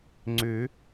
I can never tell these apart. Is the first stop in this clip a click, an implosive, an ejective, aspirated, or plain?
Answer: click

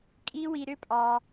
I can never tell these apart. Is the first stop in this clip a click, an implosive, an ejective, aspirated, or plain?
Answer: ejective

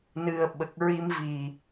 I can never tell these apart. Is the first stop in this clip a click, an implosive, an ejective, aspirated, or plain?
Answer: implosive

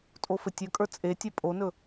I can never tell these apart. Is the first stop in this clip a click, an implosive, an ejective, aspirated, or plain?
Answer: ejective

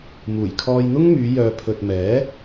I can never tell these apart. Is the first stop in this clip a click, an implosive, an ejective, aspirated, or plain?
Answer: aspirated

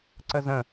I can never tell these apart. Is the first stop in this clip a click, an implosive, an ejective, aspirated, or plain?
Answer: click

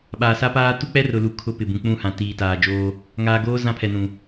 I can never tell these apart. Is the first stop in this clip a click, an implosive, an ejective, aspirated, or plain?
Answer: implosive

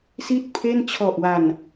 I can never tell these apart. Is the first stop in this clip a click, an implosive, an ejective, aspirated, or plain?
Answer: plain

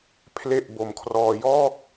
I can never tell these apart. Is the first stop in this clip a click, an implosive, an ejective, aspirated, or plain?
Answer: aspirated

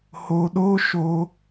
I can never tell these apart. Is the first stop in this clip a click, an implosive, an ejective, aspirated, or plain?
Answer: implosive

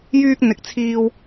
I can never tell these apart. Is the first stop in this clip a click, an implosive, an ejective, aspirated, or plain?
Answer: plain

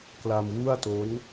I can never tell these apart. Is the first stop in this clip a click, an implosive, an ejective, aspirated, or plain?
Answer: plain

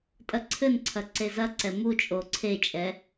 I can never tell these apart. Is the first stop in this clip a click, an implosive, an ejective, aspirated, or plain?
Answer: ejective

